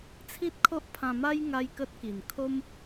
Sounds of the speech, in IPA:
t͡sʰ i˦ t̚ kʰ o˦ ʔ pʰ ã˧ m a˦ j ŋ a˦ j k ə˦ t̚ k i˨˩ n kʰ o˦ m

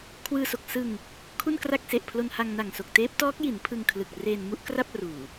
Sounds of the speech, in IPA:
kʰ w ɯː˧ s o˨˩ k̚ s ɯ˧ ŋ | kʰ u˥˩ n k r a˥˩ k̚ s e˨˩ ʔ pʰ l o˧ n h a˧ ŋ n a˨˩ ŋ s o˨˩ k̚ t eː˦˥ p̚ t ɔː˦˥ k̚ j i˩˦ n pʰ ɯ˧ ŋ kʰ l ɯ˨˩ k̚ r eː˧ n m u˥˩ ʔ k r a˥˩ p̚ r uː˨˩

